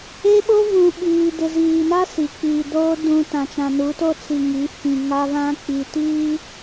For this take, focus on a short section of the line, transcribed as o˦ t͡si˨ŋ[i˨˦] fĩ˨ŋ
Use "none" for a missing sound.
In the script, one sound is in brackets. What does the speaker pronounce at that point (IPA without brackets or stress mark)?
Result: i˨˦